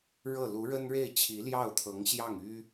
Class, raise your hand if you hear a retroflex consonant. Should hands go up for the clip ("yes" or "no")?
yes